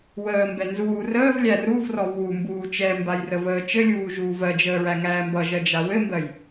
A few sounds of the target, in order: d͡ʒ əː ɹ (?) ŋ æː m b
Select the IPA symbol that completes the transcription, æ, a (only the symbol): æ